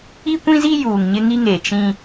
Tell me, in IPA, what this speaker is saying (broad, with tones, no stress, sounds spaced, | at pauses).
i˦ kʷ ĩ˦ z i˦ j uː˨ ŋ ɲ ɪ˦ ŋ i˦ ŋ e˨ t͡ʃ ĩ˦